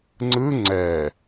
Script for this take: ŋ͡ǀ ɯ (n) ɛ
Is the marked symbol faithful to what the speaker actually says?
no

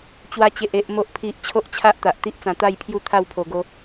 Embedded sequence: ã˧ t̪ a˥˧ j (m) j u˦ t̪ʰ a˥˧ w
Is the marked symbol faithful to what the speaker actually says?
no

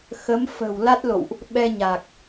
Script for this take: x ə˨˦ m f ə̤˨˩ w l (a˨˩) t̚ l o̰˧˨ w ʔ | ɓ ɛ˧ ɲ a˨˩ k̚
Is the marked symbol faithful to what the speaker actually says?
no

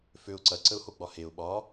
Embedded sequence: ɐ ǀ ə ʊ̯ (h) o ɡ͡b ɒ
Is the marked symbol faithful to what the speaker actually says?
yes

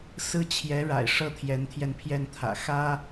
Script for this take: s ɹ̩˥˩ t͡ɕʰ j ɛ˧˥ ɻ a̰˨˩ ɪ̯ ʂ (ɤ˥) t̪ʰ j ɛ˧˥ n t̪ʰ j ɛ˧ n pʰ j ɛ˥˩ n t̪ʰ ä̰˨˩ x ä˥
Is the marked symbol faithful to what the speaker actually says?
no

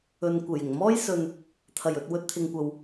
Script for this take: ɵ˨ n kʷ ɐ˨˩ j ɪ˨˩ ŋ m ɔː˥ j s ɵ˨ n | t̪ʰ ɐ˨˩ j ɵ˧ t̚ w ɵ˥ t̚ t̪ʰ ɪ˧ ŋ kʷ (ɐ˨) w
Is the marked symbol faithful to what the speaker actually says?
yes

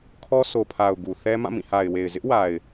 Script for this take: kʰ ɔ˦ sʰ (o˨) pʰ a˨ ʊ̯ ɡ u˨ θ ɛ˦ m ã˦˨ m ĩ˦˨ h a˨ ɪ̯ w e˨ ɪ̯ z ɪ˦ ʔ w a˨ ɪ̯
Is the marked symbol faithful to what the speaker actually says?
yes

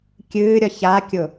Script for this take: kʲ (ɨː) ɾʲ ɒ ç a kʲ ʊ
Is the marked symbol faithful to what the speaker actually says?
yes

